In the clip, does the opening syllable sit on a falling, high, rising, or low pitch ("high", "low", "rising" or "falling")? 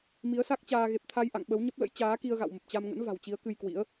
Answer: rising